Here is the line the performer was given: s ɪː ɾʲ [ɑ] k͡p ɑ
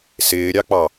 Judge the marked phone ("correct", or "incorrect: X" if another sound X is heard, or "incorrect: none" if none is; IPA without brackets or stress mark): correct